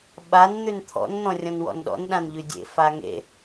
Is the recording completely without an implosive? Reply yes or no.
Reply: no